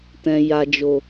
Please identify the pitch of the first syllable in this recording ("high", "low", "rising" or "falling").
low